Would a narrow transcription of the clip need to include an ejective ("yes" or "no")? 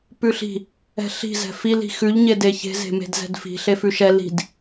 no